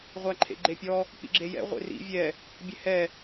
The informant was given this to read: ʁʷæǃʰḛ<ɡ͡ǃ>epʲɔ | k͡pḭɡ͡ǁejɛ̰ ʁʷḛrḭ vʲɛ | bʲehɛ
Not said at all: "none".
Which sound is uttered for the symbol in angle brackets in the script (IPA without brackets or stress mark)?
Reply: ɡ͡ǃ